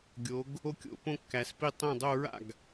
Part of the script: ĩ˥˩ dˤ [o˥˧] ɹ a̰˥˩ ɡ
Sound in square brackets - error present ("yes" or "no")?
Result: no